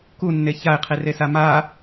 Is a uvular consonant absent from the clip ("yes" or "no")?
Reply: no